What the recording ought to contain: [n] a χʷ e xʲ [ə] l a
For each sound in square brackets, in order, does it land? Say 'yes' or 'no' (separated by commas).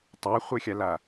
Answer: no, no